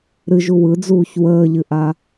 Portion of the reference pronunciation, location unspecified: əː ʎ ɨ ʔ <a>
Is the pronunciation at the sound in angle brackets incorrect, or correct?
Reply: correct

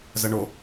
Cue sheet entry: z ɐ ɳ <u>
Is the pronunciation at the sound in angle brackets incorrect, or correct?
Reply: incorrect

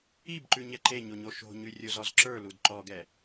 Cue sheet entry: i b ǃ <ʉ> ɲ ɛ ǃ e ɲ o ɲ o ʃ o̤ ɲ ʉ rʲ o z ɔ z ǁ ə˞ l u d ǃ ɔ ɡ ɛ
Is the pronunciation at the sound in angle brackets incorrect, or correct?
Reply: correct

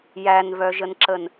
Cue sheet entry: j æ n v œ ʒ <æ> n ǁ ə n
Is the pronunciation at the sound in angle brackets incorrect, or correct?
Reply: incorrect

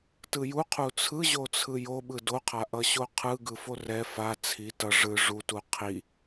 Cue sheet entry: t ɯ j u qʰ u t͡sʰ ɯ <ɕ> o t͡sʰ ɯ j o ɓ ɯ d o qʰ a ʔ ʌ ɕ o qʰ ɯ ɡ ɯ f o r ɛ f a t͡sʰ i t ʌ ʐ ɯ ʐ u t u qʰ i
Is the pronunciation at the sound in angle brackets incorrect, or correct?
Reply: incorrect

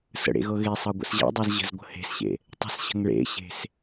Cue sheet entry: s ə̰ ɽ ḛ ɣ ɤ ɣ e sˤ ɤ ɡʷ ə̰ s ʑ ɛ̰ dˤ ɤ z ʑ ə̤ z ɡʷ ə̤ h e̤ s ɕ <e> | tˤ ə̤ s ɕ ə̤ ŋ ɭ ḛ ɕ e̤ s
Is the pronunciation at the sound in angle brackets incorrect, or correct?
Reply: incorrect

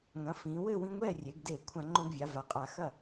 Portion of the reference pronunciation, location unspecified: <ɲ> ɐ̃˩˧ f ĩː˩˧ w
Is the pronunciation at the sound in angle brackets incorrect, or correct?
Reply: incorrect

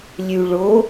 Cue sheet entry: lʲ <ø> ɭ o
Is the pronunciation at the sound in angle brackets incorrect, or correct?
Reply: incorrect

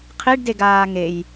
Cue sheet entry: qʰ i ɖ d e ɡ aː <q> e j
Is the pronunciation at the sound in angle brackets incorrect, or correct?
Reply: incorrect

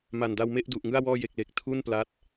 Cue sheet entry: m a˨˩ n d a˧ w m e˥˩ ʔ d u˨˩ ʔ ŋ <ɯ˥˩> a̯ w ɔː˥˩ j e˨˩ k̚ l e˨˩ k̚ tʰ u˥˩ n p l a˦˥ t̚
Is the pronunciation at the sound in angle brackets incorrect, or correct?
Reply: correct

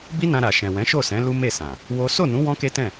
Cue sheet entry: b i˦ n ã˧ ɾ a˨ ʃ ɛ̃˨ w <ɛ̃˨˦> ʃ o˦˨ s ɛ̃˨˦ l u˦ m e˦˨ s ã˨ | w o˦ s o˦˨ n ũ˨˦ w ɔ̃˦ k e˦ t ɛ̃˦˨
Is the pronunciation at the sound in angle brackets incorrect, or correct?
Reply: correct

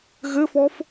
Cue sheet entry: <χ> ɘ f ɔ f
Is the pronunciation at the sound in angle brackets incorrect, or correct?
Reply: incorrect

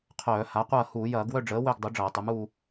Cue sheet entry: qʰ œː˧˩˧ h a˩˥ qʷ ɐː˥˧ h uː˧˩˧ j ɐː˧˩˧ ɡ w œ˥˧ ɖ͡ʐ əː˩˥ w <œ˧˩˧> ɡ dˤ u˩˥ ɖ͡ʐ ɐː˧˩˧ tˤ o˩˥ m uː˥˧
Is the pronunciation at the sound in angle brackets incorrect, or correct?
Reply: incorrect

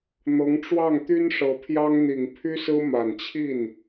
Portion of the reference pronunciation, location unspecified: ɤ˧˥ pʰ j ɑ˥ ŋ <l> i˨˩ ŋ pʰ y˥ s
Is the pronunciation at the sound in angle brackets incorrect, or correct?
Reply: incorrect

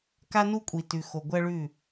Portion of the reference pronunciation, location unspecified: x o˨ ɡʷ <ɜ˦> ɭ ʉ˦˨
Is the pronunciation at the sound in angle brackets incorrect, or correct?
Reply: correct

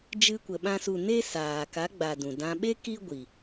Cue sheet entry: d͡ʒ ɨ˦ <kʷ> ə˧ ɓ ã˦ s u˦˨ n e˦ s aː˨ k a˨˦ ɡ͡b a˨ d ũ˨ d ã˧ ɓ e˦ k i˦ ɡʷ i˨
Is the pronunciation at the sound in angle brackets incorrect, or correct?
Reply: correct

